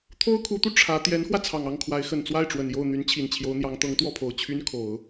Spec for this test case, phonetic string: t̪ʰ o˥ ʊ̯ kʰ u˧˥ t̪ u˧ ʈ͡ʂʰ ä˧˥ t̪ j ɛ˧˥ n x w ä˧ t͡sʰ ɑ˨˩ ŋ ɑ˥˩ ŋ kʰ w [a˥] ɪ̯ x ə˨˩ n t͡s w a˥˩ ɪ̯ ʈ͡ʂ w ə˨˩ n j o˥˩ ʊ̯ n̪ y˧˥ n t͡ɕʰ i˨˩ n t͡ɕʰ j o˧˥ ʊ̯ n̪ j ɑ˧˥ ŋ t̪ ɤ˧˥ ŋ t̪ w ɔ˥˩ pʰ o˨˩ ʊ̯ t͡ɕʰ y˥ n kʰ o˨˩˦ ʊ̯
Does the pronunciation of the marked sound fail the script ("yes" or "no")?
yes